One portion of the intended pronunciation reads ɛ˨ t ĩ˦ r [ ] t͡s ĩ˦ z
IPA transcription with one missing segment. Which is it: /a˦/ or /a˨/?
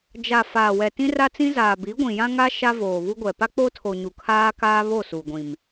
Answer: a˦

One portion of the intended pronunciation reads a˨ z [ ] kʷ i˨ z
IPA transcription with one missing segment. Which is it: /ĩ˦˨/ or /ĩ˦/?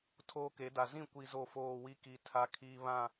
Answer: ĩ˦˨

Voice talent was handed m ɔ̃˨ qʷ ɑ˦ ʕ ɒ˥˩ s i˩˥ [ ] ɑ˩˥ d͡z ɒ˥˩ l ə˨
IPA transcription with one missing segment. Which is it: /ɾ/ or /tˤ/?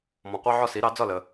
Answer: ɾ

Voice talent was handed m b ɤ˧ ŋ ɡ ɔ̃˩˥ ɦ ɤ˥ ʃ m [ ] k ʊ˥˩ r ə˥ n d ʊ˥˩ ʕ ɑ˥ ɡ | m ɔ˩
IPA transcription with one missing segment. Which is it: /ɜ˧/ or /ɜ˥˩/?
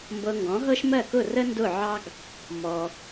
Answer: ɜ˥˩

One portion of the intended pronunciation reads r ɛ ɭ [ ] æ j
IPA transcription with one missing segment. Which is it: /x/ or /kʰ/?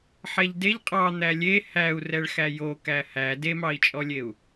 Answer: x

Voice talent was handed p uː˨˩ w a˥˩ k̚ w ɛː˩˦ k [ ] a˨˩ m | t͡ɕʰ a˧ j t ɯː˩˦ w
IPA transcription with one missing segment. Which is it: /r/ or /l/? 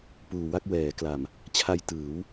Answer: l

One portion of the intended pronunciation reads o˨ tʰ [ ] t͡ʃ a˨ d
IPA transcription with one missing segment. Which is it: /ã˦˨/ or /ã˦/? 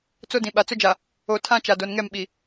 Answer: ã˦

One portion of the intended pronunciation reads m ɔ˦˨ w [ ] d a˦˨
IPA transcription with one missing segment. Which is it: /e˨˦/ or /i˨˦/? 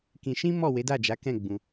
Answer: e˨˦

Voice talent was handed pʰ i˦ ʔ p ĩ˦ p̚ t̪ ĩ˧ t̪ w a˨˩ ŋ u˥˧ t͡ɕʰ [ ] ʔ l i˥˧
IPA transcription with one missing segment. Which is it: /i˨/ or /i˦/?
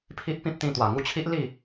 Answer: i˦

